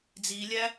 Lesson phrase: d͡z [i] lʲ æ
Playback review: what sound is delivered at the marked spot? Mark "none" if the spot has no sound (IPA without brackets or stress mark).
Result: i